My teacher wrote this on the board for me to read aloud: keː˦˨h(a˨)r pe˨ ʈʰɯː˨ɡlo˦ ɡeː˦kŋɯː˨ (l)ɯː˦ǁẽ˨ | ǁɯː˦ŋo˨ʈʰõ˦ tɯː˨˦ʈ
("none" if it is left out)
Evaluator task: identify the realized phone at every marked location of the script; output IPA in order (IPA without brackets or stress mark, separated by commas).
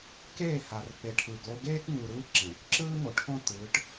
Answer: a˨, ɾ